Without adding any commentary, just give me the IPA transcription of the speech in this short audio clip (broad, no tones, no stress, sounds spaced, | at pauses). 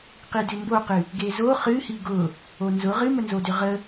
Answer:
q i d ʏ m b o q ɨ | ɡ e z o χ ɨ h i ɡ ʊ | o n z ʊ ʁ ɨ m ə n z o d ʏ ʁ ə